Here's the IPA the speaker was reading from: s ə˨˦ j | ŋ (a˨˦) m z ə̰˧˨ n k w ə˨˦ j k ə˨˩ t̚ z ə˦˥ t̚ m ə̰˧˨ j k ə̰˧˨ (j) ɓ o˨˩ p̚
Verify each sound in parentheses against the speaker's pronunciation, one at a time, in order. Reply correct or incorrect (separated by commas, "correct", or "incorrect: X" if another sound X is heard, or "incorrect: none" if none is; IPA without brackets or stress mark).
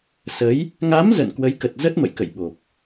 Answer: correct, correct